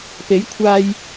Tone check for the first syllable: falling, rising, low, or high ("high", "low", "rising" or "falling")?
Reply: rising